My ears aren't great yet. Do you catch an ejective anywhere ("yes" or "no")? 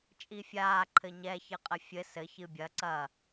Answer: yes